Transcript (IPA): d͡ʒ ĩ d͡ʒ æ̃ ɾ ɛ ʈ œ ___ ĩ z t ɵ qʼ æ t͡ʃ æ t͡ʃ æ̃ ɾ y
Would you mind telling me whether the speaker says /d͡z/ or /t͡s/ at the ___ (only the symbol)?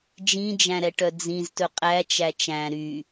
d͡z